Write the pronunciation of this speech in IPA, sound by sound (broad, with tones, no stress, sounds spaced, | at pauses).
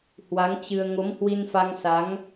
h w a˨˦ ŋ t͡ɕ ɨ˧ ə̯ ŋ o˨˦ m h w i˧ n f a˧ ŋ s a˨˦ ŋ